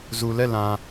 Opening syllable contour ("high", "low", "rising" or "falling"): low